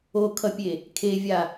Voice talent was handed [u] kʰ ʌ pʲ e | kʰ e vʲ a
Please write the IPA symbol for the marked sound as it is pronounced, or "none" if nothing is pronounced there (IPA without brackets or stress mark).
o